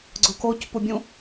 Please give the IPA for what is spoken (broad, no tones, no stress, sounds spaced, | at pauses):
ɡ͡ǀ ʊ k o c p u bʲ ũ